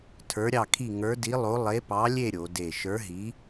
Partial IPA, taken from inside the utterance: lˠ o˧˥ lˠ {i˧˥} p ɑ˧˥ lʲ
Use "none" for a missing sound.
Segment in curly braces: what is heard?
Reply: e˧˥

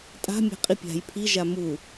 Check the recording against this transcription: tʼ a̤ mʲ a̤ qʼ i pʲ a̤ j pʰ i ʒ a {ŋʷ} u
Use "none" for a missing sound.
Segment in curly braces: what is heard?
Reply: m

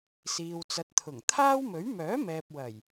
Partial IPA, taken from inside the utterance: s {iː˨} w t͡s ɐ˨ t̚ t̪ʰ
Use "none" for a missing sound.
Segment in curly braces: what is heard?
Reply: iː˨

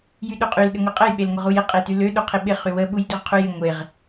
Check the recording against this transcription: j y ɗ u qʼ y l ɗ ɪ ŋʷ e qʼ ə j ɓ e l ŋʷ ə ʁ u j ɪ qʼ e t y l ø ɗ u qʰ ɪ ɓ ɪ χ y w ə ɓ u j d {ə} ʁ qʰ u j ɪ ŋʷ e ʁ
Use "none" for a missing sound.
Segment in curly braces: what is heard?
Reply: ø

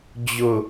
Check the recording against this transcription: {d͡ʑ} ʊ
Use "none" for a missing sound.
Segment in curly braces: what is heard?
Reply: d͡ʑ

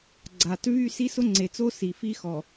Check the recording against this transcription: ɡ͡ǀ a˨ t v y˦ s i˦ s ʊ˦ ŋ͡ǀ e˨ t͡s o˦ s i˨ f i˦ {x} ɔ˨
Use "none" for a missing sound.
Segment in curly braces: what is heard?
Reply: x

